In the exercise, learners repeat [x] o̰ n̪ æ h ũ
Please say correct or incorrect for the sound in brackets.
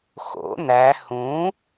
correct